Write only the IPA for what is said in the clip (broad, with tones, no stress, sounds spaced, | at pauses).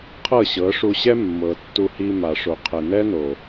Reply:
qʰ ɤ˦˨ ɕ ɤ˨˦ ʂ u˧ ɕ ɛ˦ mː ɤ˨ tː u˧ h i˧ m a˨ ʂ o˨ qʰ ɛ˨ n ɛ˦ n o˨